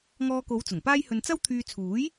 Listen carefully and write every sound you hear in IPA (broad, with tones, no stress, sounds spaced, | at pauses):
ŋ ɔː˧ k o˨˧ w t͡s ʊ˨˩ ŋ p aː˥ j h ɵ˧ n t͡s ɐ˥ w t̪ʰ yː˧ t͡sʰ uː˨˥ j